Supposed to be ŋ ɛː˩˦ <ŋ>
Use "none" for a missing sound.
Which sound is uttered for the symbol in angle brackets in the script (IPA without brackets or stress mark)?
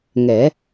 none